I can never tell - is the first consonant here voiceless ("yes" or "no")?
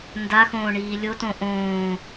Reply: no